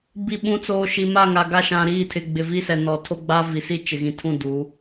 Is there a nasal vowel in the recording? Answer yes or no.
yes